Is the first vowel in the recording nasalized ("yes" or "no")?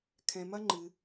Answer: yes